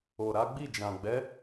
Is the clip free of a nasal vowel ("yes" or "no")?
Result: no